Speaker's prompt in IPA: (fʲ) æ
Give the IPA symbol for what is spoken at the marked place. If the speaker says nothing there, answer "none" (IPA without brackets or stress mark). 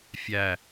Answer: fʲ